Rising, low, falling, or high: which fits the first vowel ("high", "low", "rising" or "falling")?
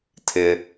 low